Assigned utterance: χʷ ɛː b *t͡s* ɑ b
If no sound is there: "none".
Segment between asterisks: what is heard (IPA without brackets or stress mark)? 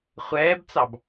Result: t͡s